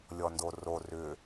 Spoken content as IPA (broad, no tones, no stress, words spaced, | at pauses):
lʲɔndoro rʏ